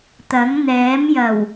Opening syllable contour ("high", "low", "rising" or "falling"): rising